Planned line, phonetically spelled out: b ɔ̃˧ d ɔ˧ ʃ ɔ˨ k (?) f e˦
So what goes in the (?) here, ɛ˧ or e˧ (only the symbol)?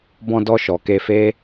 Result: e˧